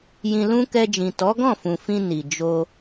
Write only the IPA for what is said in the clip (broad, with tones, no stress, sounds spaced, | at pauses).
j ĩ˧ l ũ˦ k ɛ˧ d͡ʒ ĩ˨ t ɔ˨˦ ɡ ɔ̃˦˨ f ũ˨ f ĩ˧ n i˨ d͡ʒ o˧